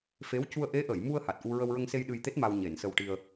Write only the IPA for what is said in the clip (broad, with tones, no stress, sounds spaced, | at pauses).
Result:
f e˧˥ w c u˧ ə̯ ʔ e˧˥ ʔ ə˨˩˨ j m u˧ ə̯ h a˨˩ t̚ ʔ u˧ ɹ ə˧ w ɹ ə˧ ŋ s e˧ j ɗ ɨ˧ j t̪ e˦˥ t̚ m a˧ w ɲ e˨˩˨ n s ə˧ w ʈ i˧ ə̯